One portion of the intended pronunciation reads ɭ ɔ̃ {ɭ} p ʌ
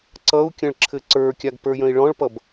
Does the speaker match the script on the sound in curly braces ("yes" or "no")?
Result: yes